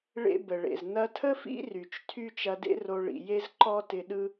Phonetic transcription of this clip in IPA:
ɭ ḛ˥ b ə˩ ɭ ḛ˩ z n ɐ˧ tʰ ə˥ f ḭ˥ r y˩ t͡ʃ tʰ y˥ t͡ʃ ɐ˧ d ḛ˥ r o˧ ɭ ḭ˩ j e˥ z ǃ ɔ˥ t ɪ˧ ɗ ɯ˥

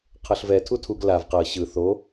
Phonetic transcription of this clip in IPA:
qʰ ɤ ɬ v ɛ tʰ u tʰ u ɡ l a v q ɤ ɕ ɯ θ o

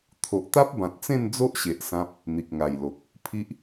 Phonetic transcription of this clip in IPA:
t̪ʰ o˨ ʔ t̪ a˦ p̚ b ã˨ t̚ t͡s ẽ˥˧ n d͡z o˦ ʔ ɕ e˨ ʔ s ã˦ p̚ | n̪ i˨ k̚ ŋ a˨˩ j l o˨ k̚ | pʰ i˦ ʔ

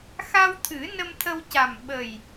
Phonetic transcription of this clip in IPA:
x a˧ w t̪ʰ ɨ˨˩˦ n ə˧ m t̪ʰ ə˧ w c a˨˩ m ɓ ə˨˩ j

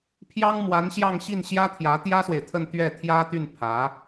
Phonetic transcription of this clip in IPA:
pʰ j ɑ˥ ŋ m w a˧˥ n ɕ j ɑ˥˧ ŋ ɕ i˥˩ n ɕ j ä˥ t̪ʰ j ä˧˥ t̪ j ä˥ s w e˨ ɪ̯ t̪ʰ ə˥˧ n t̪ ɥ ɛ˥˩ t̪ʰ j ä˥ t̪ y˥˩ n pʰ ä˧˥

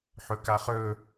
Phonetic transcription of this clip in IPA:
ħ ɵ k a χ ɵ

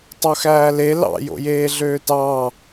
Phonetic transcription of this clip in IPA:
tˤ o x æː l e l ɑ̰ j o̰ j eː ɮ øː t ɑː

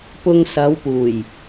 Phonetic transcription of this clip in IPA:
p ʊ˧ ŋ s ɐ˨˧ w p uː˨˩ j

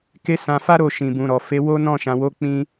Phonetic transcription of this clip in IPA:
k e˦ s ã˧ f a˦ ɾ o˦˨ ʃ ĩ˨ b ũ˨ ɾ ɔ˨ f e˨˦ w o˦ n ɔ̃˦˨ ʃ ã˨ w o˨˦ k͡p ĩ˧

